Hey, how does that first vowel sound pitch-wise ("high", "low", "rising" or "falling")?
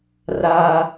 high